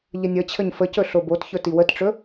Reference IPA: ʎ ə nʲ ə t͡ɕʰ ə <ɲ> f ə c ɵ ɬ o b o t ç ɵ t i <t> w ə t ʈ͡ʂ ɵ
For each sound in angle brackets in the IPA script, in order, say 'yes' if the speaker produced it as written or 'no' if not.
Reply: yes, no

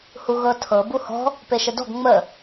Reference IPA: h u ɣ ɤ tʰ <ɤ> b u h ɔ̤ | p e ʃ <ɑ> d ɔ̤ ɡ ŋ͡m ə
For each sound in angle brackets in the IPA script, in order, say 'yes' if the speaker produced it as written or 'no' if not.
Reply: yes, no

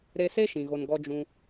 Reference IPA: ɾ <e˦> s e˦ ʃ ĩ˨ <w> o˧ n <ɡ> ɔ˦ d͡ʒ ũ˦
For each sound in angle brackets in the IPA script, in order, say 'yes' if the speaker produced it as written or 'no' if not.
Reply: no, no, yes

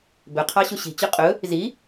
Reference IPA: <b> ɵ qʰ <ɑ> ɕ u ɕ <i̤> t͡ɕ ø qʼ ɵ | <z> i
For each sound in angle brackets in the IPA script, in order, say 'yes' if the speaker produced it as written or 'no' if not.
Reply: yes, yes, yes, yes

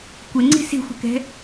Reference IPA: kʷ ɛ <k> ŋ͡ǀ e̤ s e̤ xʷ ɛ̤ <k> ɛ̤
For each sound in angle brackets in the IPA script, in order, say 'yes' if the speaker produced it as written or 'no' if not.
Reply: no, yes

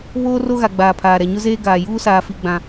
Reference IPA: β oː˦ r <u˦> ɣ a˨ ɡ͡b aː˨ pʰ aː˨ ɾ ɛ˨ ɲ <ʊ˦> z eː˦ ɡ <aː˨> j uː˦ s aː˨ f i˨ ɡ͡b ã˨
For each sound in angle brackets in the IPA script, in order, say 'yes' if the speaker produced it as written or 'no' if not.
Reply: no, yes, yes

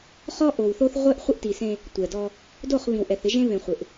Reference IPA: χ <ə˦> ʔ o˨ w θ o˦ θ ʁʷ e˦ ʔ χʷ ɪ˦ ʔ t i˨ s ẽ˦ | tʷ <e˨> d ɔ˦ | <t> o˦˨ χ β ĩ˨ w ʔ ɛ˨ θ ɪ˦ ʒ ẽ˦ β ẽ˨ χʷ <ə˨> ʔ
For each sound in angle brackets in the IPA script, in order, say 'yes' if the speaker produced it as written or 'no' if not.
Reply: no, no, no, no

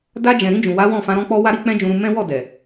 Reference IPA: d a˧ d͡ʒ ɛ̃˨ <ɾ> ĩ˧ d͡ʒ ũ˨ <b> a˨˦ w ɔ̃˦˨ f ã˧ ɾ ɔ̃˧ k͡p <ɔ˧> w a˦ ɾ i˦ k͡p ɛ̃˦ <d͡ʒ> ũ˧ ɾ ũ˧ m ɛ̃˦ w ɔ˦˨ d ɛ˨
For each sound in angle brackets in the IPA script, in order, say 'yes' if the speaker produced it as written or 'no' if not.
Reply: yes, no, yes, yes

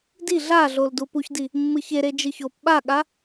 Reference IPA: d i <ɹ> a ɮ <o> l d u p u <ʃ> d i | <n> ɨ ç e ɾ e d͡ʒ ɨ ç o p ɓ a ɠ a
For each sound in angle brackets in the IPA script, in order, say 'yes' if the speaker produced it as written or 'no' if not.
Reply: no, yes, no, no

